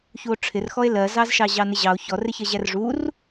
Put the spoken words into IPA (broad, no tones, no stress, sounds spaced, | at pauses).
ç u o̯ ʈ͡ʂʰ ɪ r x ɔ e̯ l ɜ z ɑ z ʃ ɑ ʑ ɑ n ɪ ʑ ɑ o̯ ç ɔ r ɪ ç ɜ ʑ æ r ʐ u r